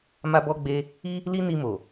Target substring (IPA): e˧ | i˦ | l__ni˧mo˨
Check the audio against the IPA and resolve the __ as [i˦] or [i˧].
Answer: i˦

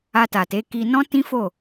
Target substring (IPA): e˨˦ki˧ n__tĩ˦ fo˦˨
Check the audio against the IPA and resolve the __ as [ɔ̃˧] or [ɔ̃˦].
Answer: ɔ̃˦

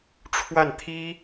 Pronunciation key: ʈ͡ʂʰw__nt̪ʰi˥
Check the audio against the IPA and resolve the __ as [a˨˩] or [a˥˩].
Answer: a˥˩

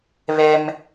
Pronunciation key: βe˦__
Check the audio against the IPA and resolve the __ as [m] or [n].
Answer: m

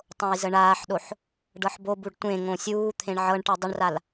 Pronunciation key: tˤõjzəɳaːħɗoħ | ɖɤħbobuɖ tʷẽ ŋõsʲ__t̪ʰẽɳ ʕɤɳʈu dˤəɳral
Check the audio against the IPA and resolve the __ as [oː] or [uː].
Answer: uː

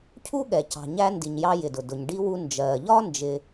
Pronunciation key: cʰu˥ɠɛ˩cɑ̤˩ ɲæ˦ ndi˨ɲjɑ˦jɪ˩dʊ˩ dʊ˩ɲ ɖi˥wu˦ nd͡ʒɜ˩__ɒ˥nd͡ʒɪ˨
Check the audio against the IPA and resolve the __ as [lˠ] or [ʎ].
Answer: ʎ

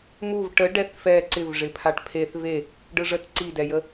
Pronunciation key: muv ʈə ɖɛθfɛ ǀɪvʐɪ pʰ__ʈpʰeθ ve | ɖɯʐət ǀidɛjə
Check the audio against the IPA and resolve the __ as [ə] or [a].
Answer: a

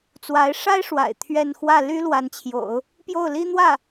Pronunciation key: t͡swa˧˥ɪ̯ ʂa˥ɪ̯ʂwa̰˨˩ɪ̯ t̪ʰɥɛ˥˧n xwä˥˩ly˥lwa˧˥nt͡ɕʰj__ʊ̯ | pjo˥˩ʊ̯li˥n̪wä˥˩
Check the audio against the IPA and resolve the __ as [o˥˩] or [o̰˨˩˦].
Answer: o̰˨˩˦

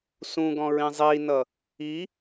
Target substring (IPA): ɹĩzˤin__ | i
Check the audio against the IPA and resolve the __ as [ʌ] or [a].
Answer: ʌ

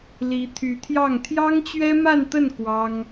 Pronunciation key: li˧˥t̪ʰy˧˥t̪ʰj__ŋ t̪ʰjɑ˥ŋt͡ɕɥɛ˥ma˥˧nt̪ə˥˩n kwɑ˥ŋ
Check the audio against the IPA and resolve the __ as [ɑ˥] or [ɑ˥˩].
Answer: ɑ˥˩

